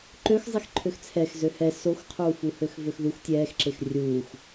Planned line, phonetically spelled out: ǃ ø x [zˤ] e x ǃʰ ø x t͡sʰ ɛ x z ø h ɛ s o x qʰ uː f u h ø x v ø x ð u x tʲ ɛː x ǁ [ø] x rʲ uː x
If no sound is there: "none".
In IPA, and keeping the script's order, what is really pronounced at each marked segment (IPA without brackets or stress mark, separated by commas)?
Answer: zˤ, e